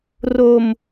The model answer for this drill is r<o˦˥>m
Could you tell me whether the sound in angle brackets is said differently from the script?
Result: yes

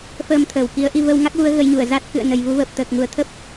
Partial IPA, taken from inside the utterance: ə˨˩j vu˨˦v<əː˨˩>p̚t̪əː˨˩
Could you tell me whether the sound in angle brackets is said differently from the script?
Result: no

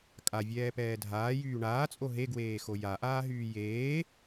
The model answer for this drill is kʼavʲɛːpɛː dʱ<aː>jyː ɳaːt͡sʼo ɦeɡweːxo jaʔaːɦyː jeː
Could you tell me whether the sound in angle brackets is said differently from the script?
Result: no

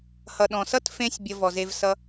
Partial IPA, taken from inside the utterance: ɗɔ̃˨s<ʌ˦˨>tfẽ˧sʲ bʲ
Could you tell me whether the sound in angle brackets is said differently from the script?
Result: yes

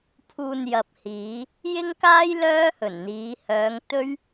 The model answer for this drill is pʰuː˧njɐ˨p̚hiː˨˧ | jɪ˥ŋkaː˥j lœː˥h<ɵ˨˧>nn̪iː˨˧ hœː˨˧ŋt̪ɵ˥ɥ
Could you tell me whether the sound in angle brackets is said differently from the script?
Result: yes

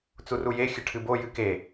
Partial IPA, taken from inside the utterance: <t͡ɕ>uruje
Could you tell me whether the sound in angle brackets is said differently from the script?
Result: yes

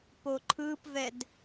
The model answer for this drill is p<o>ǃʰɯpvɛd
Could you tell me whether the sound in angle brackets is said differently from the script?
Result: no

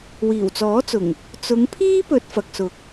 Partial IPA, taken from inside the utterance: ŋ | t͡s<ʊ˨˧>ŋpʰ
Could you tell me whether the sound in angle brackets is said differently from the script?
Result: no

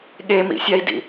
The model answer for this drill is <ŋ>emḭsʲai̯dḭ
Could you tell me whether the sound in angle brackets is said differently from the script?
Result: yes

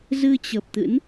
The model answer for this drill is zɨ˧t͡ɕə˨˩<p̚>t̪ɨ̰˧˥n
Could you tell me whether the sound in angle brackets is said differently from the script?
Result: no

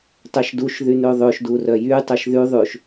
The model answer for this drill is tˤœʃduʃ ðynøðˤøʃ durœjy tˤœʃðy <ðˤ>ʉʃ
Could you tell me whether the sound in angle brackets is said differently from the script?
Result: no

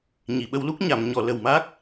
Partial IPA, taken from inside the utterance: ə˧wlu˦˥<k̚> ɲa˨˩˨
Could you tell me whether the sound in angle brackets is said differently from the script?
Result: no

